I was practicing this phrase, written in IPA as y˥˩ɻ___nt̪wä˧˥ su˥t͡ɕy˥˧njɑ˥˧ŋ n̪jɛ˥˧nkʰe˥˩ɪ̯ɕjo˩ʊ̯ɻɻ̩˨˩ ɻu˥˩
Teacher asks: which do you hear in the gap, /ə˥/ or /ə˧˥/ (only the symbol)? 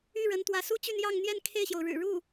ə˧˥